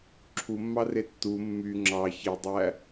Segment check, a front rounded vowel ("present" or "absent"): present